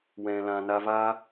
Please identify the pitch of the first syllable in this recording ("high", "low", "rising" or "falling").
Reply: low